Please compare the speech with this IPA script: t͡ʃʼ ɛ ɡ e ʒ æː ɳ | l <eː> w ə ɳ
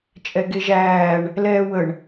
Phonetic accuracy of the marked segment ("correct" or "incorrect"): incorrect